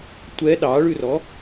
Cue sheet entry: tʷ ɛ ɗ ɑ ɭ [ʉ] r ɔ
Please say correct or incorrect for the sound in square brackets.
correct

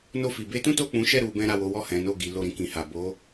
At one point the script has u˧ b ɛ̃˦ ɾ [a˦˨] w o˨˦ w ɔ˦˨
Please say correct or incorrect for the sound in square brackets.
correct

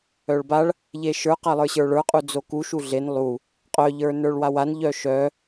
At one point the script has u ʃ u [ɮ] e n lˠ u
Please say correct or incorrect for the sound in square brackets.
correct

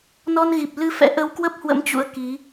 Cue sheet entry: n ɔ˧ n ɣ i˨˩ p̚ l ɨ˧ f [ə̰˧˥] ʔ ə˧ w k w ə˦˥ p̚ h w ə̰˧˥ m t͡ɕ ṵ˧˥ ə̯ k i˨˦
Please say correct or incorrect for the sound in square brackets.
incorrect: ɛ̰˧˥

